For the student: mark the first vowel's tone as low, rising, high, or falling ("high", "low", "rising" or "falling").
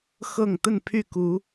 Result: low